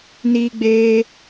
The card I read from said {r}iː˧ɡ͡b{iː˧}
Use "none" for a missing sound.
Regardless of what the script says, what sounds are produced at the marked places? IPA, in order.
n, eː˧

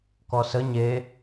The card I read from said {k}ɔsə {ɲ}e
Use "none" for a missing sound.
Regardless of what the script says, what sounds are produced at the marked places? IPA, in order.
k, ɲ

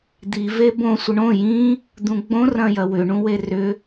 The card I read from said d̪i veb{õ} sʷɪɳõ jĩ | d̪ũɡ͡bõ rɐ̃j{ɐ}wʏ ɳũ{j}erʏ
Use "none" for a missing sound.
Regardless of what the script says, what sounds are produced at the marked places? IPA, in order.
õ, ɐ, w

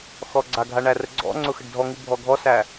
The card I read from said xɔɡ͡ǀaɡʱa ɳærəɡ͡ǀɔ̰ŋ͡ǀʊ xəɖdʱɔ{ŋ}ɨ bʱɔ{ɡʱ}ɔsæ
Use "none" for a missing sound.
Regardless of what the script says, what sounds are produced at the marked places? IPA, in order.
ŋ, ɡʱ

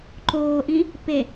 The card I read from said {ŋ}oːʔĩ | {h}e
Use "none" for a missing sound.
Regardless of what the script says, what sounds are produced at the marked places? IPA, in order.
ǃ, p

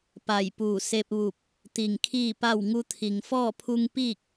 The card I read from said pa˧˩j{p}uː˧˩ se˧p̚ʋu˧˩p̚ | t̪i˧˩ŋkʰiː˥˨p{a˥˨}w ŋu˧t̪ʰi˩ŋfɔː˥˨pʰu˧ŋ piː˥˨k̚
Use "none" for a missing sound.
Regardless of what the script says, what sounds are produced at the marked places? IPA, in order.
p, a˥˨

